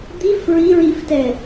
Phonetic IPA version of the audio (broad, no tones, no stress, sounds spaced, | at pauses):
d̪ i f ɹ i ɹ i f t ɛ